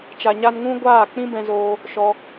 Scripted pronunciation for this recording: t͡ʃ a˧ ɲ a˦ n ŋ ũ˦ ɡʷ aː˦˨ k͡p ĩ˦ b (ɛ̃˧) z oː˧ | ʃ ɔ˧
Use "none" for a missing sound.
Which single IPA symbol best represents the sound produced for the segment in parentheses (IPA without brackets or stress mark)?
ɛ̃˧